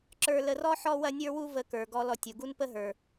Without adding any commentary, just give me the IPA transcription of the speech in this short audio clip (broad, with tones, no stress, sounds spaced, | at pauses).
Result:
ǁ ə˞˧ l ə˧ r ɔ˥ ħ ɔ˥ w ɐ˥ nʲ ə˞˥ w u˥ v ə˧ k ə˞˩ ɡ ɔ˧ l ɔ˧ tʲ u˩ ɡ u˥ n p ə˥ ɦ ə˞˩